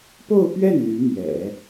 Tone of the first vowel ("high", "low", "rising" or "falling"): falling